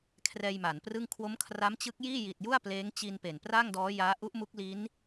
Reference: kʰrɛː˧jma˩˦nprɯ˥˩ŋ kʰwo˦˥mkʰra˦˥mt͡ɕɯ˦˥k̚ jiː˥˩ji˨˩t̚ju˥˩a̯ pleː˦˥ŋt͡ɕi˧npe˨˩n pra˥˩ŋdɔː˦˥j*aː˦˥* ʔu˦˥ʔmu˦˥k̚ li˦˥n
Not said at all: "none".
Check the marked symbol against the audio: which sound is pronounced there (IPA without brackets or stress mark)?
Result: aː˦˥